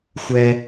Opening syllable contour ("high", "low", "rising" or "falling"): high